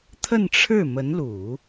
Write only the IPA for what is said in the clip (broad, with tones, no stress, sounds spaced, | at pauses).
t̪ʰ ə˥˧ n ʈ͡ʂʰ ɻ̩˥˩ m ə˧˥ n l u˨˩˦